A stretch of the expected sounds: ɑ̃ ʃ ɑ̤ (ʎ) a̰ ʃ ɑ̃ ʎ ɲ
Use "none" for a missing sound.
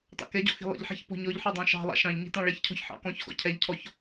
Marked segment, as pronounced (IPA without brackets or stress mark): lˠ